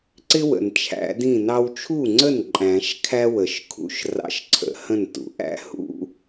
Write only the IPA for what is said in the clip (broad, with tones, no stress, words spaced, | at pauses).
ǀɪ˥wə̰˩n t͡ʃʰæ̰˨˩˦dĩ˥˩ nɑ˧wt͡ʃʰu˥˩ŋ͡ǀə˥˩n ǃʼæ̃˨˩˦ʃkʰæ˥ wə˨˩˦ʃkʰṵ˨˩˦ʃ rɑ̰˧˥ʃǀʰə̰˨˩˦hə̃˥˩ntṵ˨˩˦ ʔæ̰˥hṵ˥